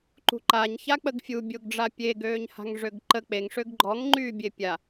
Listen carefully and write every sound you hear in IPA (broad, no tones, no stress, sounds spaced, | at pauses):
ǃ ṳ ǃ a ɲ ç a k͡p ə ɡ fʲ u bʲ o ɡ ɖ͡ʐ a pʲ e ɡ øː ɲ h a̤ ŋ ʐ ø ɡ ǃ ə k͡p e ŋ ʂ ø ɡ ɡ͡ǃ ɔ ŋ ŋ͡ǃ yː bʲ e pʲ a